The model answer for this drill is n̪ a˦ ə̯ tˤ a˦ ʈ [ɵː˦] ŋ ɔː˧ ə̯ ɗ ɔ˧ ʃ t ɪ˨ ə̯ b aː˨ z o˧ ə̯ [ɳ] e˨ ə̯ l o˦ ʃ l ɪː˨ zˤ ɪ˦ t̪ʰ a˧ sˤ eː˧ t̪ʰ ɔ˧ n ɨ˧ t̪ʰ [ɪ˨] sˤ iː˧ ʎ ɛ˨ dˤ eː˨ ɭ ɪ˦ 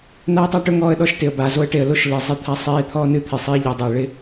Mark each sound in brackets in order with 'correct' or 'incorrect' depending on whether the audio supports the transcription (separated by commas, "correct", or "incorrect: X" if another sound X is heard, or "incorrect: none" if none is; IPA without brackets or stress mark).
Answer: incorrect: ɵ˦, incorrect: ʈ, correct